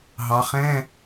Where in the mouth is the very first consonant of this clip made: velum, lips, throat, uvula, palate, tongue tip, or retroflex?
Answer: throat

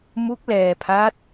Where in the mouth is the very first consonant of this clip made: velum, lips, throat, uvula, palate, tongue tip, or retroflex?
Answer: lips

